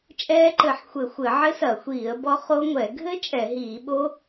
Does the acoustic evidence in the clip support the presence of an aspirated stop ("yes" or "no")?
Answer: no